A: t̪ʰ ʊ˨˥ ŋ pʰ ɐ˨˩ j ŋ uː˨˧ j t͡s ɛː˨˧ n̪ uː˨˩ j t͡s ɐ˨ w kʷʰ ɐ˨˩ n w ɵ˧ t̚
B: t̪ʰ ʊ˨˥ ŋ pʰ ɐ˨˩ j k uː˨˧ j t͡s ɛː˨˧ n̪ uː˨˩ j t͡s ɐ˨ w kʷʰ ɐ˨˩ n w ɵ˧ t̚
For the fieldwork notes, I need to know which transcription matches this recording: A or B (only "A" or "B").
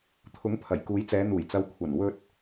B